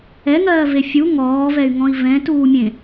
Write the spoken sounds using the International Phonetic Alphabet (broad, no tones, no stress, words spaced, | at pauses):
ɛŋɜːve fʲu ŋɔːvɛy̯ŋɔ̃i̯ vɛ̃tuːmʲẽ